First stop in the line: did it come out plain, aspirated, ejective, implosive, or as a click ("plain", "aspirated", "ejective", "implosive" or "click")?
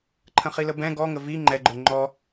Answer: click